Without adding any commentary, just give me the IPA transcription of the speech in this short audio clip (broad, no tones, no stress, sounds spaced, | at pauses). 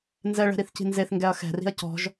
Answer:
n z ɛ ɭ ɛ̤ ɾ i θ c i̤ n z e θ ŋ ɡ ɛ ɐ̯ x ɛ̤ r i̤ ɐ̯ c ɔ̤ ʒ